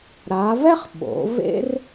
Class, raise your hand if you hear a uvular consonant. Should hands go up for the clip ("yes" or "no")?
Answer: yes